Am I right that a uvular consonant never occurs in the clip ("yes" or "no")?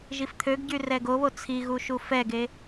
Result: yes